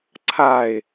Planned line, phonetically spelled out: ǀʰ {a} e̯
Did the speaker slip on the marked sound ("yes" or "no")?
no